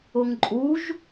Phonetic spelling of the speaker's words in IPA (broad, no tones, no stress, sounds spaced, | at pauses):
ʊ ŋ ǃʼ u ʒ